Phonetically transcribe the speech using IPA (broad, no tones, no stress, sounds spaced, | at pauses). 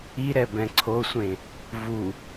i ɾ ɛ b ɛ̃ ǀʰ o sʷ ẽ | v u